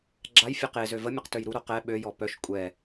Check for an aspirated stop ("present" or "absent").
absent